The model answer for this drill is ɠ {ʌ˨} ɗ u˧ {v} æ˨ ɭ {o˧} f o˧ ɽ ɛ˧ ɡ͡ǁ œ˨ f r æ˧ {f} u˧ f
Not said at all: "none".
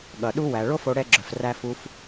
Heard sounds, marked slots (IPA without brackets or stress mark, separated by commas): ʌ˨, w, o˦, f